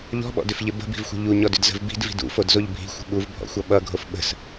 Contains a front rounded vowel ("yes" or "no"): yes